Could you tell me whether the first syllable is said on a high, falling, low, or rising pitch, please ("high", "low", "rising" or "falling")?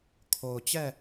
low